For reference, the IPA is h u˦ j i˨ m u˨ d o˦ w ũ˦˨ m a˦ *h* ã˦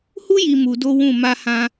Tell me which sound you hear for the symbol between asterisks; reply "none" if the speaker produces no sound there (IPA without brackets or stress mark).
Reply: h